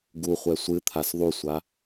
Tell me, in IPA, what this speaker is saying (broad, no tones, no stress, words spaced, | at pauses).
ɡu χʷɛsʷɨt̪ʰas ðˤusʷa